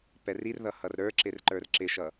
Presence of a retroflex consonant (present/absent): absent